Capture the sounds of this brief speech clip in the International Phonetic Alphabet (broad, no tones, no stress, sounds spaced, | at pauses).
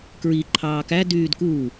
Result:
k ɹ i ǃʰ ɑː k æ d yː d k uː